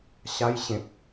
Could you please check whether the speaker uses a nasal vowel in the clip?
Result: yes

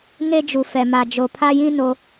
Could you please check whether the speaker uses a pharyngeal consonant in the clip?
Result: no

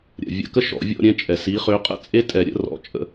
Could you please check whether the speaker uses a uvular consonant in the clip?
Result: yes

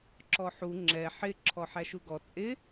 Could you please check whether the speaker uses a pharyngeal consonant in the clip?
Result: yes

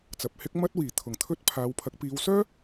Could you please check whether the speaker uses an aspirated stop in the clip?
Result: yes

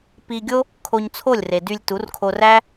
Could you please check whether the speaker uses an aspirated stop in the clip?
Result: yes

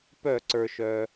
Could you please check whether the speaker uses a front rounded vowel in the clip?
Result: yes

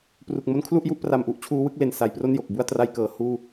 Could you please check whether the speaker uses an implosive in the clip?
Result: no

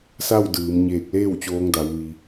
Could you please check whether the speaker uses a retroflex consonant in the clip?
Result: no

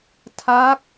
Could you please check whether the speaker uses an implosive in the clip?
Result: no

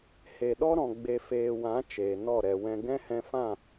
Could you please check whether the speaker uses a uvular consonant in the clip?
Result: no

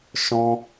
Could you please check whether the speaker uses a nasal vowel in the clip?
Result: yes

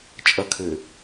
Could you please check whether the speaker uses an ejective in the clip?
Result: yes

